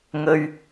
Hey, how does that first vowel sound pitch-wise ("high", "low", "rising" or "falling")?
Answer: high